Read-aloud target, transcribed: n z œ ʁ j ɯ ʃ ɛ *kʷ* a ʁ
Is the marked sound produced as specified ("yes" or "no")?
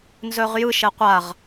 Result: no